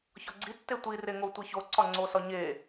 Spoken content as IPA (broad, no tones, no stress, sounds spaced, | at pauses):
ç ɒ ɡ͡ǀ i tː e tʷ i r e ŋ o tʷ e ç o ǀ ɒ ŋ͡ǀ o s ɒ ɲ e